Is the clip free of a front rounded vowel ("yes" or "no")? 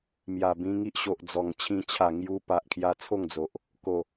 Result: yes